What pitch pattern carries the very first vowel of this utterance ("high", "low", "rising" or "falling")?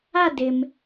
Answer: falling